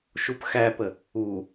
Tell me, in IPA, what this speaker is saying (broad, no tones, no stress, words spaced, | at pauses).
ʃupxæpə | u